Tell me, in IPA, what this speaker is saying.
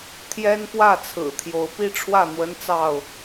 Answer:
t̪ʰ j ɛ˦ n p w ä˥˨ t͡sʰ ɹ̩˨˩ t̪ʰ j o˨˦ ʊ̯ p i˦ ʈ͡ʂʰ w ä˥˨ n̪ w ə˦ n t͡s ɑ˥˨ ʊ̯

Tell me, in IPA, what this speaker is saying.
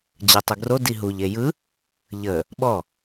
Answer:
d͡ʑ ɯ tˤ u ɡ r o d i ɦ u ʎ e j ɯ | ʎ ə | ɓ ɔ

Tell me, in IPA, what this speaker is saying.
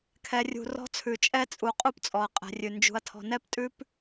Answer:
kʰ ɛ˨ rʲ ṳ˨ r ɔ̤˦ t͡sʰ ʉ˨ t͡ʃʼ ɛ˦ t͡sʼ u˨ qʼ u˦ p t͡sʼ ɔ˨ ɐ̯ qʼ ɛ̤˨ rʲ ʉ˨ n d͡ʒ ṳ˨ ɐ̯ tʰ ɔ̤˨ n ɛ˦ p tʼ ʉ˦ p

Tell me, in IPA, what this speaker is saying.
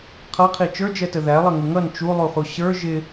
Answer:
qʰ ʌ qʰ i t͡ʃ ə˞ d͡ʒ ɛ t ə ð æ lˠ ʌ ŋ ɪ ŋ ʌ n t͡ʃ u lˠ u χ u ɕ ə˞ ʒ ɪ

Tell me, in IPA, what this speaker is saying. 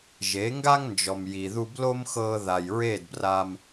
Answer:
ʒ e˨˦ ŋ ɡ a˦ ŋ n d͡ʒ ɔ˨ m j i˨ ð u˧ b l o˦ m x ɤː˧ ð a˨ j ɹ eː˦˨ d b r aː˧ m

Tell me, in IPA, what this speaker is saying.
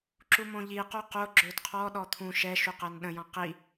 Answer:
ǁ u m õ ʎ i q o q o ɡ͡ǁ ø d qʰ ɔ ɗ ɔ t̪ʰ ũ ʃ ɛ ʃ u q ɛ n ɗ ə̃ j ɔ̃ q i

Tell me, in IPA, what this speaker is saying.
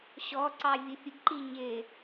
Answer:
ɕ ɔ ǀ ɑ vʲ ʊ fʲ ʊ ɡ ǃ i ɲ ɪ

